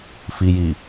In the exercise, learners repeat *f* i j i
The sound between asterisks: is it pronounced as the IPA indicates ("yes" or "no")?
yes